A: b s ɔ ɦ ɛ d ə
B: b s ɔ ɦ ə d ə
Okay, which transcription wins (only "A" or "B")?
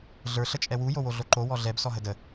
B